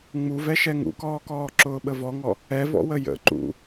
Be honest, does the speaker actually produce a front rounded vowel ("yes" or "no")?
no